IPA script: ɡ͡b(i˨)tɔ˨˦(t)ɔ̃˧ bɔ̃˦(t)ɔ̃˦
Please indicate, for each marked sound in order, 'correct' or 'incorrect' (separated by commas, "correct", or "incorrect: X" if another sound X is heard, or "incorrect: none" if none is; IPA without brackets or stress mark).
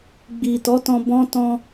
correct, correct, correct